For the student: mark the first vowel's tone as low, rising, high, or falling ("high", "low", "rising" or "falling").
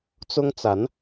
high